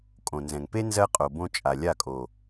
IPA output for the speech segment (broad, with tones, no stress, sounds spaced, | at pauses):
kʼ õ˨ n z ɛ̃˨ ŋ p e˦ n z ɜ˦ qʼ o˨ b õ˧ t͡ʃʼ a˨ lʲ a˦˨ kʼ o˨